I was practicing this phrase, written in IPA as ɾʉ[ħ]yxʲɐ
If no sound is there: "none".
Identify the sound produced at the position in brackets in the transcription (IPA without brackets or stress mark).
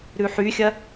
ħ